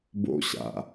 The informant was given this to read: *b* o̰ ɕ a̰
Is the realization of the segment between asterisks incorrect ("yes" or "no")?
no